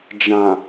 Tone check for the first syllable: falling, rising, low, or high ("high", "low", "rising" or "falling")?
low